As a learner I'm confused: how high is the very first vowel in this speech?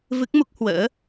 high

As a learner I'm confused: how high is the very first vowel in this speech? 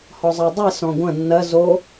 mid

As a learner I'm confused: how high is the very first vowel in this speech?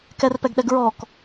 mid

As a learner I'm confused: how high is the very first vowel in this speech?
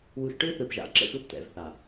high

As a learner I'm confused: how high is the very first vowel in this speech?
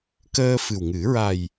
mid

